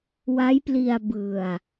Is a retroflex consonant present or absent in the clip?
absent